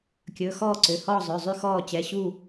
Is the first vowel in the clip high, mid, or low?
mid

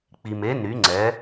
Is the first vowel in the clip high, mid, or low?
high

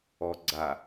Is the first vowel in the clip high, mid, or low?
mid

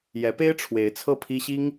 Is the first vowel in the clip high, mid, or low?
mid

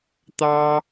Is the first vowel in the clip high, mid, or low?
low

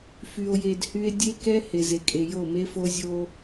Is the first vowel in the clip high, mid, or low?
high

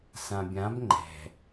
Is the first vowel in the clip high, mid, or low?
low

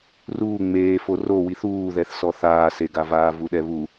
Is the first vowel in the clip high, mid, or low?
high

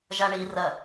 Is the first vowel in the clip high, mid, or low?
low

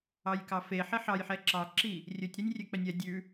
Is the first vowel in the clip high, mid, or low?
low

